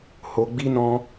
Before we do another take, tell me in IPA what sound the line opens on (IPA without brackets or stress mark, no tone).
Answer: h